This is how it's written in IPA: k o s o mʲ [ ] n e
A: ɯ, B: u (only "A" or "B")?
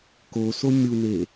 B